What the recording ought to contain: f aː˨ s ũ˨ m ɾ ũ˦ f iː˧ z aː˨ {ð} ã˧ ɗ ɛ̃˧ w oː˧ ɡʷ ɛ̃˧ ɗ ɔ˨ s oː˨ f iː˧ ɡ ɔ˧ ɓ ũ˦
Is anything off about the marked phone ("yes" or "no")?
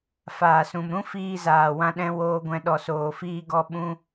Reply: yes